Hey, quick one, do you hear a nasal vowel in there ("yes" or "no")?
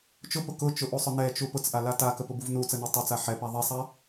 no